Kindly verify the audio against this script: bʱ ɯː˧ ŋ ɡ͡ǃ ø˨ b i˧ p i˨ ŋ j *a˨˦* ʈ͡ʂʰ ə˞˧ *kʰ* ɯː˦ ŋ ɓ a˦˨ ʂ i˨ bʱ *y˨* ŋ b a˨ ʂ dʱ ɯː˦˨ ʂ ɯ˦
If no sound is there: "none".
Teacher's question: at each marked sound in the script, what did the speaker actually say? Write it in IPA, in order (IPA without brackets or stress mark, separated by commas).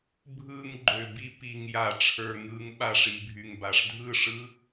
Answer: a˨, ŋ, y˨